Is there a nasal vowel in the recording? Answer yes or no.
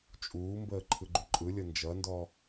no